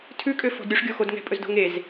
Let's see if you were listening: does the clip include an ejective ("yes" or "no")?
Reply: yes